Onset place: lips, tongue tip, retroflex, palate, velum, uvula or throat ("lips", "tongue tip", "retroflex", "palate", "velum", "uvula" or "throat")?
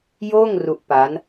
palate